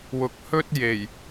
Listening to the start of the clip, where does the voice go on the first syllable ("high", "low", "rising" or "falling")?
low